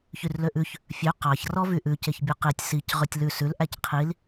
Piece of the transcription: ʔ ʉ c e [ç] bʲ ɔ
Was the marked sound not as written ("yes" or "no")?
no